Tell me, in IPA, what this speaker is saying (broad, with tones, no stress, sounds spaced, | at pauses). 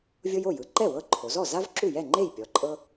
vʲ o˦ j o˥˩ j ɯ˩˧ ǃ ɛ˥˩ w ɤ˦ ǃʰ o˩˧ z ɔ˥˩ z a˦ v ǁ u˥˩ j ɛ˥˩ ŋ͡ǃ e˥˩ j pʲ ɔ˩˧ ǃʼ ɤ˦